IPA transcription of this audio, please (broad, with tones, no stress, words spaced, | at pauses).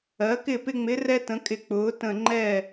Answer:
ɜ˩˥kɪ˥˩ pɪ˧ŋ͡mɪ˩˥rɛ˧ tə̃˩˥kʼɪ˧˩ k͡pʊː˩˥tə̃˧˩ŋ͡ǃɛ˥˩